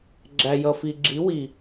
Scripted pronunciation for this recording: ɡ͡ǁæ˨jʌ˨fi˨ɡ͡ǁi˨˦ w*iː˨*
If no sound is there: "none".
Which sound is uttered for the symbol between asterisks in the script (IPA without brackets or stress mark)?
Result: i˨